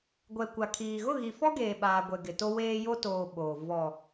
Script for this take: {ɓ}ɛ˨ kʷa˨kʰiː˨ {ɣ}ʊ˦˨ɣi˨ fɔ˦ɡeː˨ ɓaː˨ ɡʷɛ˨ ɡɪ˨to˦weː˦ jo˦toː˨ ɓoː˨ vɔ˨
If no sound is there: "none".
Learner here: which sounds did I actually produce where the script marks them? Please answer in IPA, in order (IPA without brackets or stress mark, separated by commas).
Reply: ɡʷ, ɣ